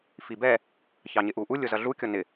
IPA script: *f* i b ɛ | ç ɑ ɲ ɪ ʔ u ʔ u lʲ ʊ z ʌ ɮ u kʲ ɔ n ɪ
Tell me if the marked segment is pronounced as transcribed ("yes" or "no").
yes